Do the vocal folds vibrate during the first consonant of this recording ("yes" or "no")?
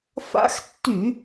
no